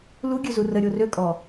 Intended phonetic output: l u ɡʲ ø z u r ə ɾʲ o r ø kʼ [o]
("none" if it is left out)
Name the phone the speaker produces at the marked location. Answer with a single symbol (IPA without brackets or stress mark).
ɔ